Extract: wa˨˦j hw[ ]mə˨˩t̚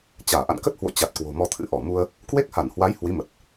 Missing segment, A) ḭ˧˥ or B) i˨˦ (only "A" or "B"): B